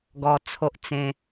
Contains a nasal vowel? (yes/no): yes